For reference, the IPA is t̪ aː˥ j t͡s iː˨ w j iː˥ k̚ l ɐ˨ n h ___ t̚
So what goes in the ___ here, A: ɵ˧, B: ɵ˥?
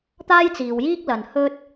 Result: B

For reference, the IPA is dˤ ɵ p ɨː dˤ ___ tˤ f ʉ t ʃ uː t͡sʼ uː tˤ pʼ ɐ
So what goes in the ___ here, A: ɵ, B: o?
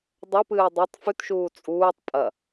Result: B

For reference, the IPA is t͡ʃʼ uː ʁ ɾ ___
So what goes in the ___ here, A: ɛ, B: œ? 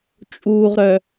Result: B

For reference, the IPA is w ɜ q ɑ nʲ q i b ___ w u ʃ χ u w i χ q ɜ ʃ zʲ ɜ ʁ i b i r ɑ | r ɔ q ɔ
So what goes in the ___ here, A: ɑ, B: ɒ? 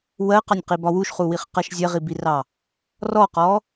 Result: B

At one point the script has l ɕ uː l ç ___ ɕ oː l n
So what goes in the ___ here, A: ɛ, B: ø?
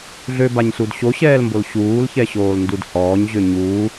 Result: A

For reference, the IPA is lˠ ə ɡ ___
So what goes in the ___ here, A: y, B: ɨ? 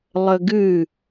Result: B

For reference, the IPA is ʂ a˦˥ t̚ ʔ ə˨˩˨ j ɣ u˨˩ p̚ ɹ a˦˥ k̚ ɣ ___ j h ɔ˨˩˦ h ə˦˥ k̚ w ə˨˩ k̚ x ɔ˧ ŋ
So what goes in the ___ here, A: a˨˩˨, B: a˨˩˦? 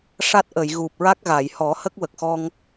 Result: A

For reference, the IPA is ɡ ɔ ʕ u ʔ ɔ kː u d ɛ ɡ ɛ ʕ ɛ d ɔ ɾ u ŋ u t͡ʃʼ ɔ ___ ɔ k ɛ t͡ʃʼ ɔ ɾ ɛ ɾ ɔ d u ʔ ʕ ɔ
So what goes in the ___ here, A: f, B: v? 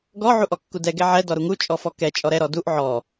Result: A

